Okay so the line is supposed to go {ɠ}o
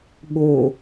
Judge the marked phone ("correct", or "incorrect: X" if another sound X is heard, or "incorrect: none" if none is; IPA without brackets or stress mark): correct